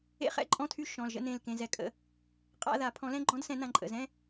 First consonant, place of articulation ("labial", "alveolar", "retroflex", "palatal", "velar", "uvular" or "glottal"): uvular